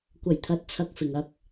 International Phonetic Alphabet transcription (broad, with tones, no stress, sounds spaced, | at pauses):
kʷ ɐ˨˩ j t̪ʰ ɐ˨˥ t̚ t͡sʰ ɐ˨ k̚ f ɪ˨ ŋ ɐ˥ k̚